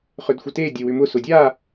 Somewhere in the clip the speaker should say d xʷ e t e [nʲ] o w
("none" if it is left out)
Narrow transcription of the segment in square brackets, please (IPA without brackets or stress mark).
dʲ